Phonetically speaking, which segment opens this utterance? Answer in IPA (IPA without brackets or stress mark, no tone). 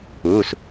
uː